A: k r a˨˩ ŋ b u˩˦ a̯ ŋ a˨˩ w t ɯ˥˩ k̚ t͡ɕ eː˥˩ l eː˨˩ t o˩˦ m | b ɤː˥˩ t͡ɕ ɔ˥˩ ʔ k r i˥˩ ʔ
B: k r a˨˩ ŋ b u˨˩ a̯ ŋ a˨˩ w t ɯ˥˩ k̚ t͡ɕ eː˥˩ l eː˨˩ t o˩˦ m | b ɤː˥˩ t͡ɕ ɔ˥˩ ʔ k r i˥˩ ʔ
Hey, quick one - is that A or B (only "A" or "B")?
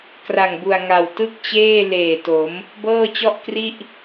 B